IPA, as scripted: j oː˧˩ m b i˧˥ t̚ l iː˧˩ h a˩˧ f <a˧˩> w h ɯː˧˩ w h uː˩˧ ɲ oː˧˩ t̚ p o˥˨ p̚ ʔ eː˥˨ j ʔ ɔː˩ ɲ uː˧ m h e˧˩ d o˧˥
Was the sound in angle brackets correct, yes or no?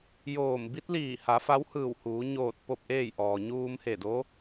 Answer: no